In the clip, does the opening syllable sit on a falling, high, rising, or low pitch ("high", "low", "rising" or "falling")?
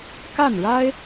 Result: falling